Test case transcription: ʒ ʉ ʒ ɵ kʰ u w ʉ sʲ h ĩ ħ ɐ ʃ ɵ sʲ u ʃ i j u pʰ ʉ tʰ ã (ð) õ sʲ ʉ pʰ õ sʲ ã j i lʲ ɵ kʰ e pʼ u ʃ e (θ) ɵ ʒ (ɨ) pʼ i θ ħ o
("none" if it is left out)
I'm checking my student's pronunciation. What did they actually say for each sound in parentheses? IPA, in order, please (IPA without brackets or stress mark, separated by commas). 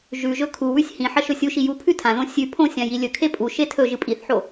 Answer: ð, tʰ, ɨ